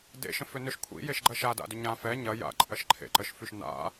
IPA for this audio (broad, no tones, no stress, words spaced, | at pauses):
dḛʃə̃ fʏnʏʃ kʷʰḭjeʃɡ͡ǃɐ ʃada̰dʏ ɲã fɛ ɲɐja̰ ǃʼɐʃǃʰḛǃəʃfyʃ na̰